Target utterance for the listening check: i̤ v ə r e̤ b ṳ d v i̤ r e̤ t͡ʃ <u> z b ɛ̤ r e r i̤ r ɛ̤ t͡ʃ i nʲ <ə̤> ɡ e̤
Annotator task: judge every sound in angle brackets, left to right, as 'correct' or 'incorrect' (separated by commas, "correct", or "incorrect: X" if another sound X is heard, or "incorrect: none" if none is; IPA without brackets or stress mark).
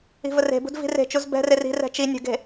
correct, correct